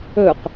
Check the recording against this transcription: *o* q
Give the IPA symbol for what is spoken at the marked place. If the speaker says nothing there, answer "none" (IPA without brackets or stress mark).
ɵ